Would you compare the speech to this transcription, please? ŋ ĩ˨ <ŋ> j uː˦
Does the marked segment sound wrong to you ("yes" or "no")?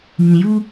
yes